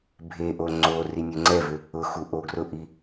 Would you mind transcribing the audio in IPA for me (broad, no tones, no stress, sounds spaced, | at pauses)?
bʱ e ʔ o ŋ͡ǀ o r i nʲ ʊ ŋ͡ǀ ɛ v ʏ | ʊ x u ʔ o ɡ r ʊ ʔ i